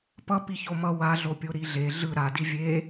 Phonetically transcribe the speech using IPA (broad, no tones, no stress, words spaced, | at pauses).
pʌ piçomʌ waɮopʲo ɾiɮe ɮɯ ɾadi vʲe